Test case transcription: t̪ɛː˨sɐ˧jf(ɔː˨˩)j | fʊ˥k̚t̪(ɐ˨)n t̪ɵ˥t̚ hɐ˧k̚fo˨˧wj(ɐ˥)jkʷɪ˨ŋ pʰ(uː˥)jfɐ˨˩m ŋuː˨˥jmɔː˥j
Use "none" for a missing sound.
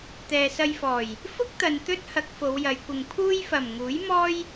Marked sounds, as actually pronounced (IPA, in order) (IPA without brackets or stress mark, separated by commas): ɔː˨˩, ɐ˨, ɐ˨˧, uː˥